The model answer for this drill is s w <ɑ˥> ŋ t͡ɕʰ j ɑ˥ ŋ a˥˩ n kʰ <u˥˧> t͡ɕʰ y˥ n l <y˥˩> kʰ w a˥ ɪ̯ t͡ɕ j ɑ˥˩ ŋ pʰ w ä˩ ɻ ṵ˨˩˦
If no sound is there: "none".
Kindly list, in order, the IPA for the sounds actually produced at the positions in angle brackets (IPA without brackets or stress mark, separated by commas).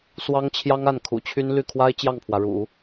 ɑ˥, ṵ˨˩, y˥˩